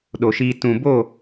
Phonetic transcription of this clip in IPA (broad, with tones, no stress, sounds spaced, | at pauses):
ɗ o˨ ʃ iː˧ t ũ˨ b o˦˨